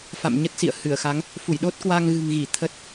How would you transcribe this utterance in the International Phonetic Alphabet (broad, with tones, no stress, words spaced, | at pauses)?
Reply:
fa̰˧˨m ɲə˦˥t̚sḭ˧˨ə̯hɨ˧˩ə̯xa˨˦ŋ | fu˧˩jɗo˦˥t̚kwa˧ŋ ɣɨ̤˨˩ŋɣi˧˩ t̪ʰə˦˥t̚